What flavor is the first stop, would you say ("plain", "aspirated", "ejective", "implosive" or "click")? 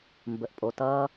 plain